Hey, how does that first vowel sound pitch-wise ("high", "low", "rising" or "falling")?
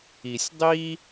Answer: low